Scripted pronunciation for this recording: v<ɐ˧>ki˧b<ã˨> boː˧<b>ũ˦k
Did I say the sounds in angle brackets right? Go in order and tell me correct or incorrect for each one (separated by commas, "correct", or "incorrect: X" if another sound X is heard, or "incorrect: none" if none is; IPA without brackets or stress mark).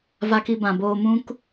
incorrect: a˧, correct, incorrect: m